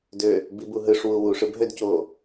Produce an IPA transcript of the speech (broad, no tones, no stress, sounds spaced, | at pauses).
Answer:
d ø | b i b u ɦ ɯ ʂ w u w u ʂ ɯ b ɦ ø d c o